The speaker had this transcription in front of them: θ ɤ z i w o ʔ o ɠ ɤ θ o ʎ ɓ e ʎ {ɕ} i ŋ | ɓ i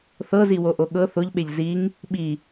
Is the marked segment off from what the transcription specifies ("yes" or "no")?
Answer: yes